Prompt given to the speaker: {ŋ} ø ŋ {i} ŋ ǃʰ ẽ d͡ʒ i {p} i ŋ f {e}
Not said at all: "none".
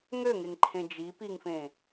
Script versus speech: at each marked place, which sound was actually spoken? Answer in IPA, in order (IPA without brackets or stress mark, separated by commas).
ŋ, e, p, ẽ